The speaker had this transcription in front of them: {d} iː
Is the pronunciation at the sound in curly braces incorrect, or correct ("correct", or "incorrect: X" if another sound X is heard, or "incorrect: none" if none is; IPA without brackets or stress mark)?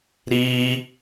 incorrect: ɾ